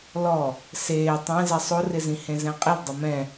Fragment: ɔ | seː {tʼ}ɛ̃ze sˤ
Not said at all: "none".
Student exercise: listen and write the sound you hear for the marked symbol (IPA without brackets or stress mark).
tˤ